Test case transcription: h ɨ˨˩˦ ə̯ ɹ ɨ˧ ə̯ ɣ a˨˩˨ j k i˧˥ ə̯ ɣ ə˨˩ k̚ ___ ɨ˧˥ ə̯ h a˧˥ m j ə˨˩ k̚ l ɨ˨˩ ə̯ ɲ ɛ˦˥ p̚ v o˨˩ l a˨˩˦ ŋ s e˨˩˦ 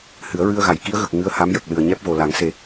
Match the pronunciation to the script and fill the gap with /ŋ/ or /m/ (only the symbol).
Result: ŋ